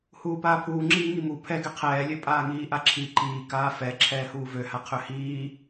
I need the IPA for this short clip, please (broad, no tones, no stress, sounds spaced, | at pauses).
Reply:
h uː p aː pʰ uː ŋ͡ǁ iː ŋ i m u pʰ ɛ ɡ ɛ qʰ ɛː lʲ ø pʼ aː ŋ iː ʔ a ǁʰ i ǃ iː k aː f ɛ ǁʰ ɛː h uː v ø h a qʰ ø h iː